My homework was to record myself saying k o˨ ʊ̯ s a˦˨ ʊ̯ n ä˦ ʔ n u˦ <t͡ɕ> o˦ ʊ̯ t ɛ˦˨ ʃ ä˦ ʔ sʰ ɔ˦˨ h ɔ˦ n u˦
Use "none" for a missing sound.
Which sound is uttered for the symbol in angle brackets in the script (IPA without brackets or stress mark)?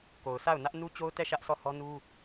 t͡ɕ